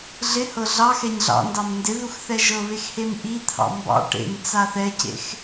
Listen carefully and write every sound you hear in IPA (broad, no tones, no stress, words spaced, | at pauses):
ɮɪhɤ ɮɑxɛɲ ɮɑ̰ndɑm ndɪðux θɛʒɤβex hemʔit̪ʰɑ̰ mbɑ̰ ʈḛm t͡saθɛcḛx